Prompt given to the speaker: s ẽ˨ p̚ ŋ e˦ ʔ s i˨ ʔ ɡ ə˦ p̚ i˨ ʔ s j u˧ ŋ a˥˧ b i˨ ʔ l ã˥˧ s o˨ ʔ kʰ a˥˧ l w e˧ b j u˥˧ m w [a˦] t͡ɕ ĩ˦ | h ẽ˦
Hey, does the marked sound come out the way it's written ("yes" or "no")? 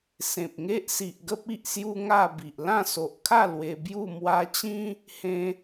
no